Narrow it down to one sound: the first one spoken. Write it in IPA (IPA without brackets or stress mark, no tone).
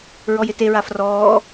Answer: ɹ